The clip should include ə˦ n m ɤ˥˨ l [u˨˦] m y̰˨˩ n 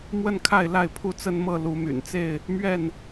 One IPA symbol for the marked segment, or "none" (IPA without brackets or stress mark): u˨˦